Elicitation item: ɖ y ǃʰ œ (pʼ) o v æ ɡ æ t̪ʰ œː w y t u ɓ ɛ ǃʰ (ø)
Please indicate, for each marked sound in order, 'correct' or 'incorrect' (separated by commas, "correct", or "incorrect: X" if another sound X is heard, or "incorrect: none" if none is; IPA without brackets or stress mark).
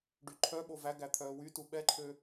incorrect: ɓ, correct